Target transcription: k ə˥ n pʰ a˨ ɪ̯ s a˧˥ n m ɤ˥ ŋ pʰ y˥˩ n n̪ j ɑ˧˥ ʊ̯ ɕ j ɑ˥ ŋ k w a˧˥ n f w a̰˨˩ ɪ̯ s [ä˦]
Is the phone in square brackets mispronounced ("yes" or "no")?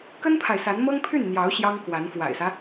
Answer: no